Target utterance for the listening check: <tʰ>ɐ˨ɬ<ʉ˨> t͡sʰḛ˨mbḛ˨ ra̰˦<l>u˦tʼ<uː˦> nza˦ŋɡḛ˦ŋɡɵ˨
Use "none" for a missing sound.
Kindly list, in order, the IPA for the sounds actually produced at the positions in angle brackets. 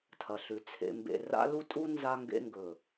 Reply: tʰ, ʉ˨, l, u˦

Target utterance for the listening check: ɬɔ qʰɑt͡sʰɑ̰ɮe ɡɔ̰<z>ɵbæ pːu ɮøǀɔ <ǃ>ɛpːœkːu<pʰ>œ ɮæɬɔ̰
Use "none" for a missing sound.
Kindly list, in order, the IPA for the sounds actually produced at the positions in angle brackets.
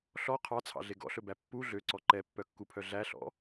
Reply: ɬ, ǃ, pʰ

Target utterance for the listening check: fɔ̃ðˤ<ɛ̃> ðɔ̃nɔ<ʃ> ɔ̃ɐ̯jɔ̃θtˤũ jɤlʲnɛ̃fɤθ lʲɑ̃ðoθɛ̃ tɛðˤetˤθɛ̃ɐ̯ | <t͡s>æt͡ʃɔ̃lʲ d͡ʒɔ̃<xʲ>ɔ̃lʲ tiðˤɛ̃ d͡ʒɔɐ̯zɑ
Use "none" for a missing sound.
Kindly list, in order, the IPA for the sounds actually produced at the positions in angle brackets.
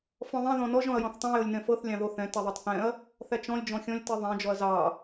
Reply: ɛ̃, ʒ, θ, xʲ

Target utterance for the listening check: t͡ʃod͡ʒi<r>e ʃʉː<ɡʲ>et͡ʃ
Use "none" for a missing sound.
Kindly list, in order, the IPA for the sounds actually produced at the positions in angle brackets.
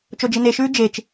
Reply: n, d͡ʒ

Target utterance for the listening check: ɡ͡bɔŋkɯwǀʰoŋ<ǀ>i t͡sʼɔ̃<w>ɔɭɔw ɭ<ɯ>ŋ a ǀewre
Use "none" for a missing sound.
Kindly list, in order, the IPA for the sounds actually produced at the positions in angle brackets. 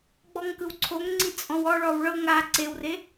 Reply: ŋ͡ǀ, w, ɤ

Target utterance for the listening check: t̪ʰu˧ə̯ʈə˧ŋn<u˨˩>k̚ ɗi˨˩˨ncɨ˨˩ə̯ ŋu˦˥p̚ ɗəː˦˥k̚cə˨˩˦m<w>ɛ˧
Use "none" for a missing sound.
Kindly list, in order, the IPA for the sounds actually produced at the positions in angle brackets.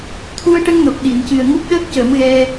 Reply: o˨˩, ɣ

